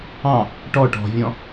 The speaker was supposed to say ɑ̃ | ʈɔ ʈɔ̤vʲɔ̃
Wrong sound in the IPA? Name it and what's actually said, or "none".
none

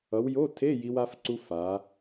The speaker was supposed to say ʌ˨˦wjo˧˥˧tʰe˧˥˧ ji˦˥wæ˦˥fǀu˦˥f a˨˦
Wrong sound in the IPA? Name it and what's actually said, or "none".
æ˦˥ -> a˦˥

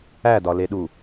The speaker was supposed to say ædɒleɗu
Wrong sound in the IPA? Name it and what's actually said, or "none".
none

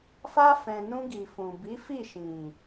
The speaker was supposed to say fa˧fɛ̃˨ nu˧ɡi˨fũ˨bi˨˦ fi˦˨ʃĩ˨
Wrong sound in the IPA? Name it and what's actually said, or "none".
u˧ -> ũ˧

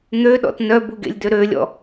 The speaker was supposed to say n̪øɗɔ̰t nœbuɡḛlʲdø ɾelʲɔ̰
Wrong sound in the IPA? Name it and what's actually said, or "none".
e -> ø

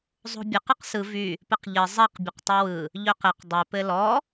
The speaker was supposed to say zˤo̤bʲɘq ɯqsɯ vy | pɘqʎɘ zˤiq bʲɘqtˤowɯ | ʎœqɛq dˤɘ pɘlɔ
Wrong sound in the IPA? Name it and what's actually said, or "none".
ɛ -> ɘ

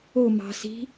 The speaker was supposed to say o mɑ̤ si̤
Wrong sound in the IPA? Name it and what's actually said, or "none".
none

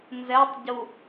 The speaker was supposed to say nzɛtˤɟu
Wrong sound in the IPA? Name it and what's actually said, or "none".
none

